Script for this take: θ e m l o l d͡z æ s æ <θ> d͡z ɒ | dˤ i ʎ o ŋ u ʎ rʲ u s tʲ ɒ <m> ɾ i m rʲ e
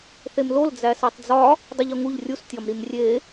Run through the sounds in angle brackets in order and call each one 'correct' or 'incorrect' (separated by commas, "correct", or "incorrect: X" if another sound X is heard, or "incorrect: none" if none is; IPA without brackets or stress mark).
incorrect: tˤ, correct